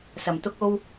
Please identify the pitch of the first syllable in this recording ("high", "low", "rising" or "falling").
low